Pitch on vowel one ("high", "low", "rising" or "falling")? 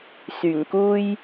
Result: low